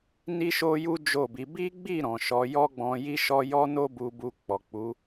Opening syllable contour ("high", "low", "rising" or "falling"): high